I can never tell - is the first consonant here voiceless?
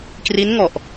yes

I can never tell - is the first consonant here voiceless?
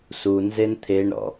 yes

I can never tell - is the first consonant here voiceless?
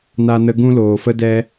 no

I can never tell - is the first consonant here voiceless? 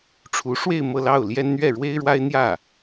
yes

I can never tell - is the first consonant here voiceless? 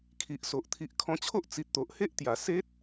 yes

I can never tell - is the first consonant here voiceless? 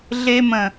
no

